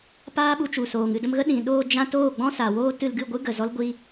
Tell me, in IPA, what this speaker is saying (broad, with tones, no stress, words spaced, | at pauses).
paː˦ɓu˧t͡ʃu˨soː˨ŋ ɨ˦˨də˧mɣə˦ ɗĩ˨ɗoː˧ d͡ʒã˧ toː˦˨ɡ͡bɔ̃˦sa˨woː˦ tɨ˧lɡɨ˦˨ɡʷɨ˦ɡə˨ zɔ˦lɡʷi˦